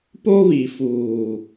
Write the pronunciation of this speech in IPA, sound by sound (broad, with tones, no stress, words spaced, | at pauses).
po˦βi˨ fuː˨